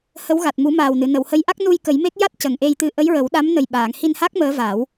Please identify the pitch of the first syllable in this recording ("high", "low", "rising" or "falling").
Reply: rising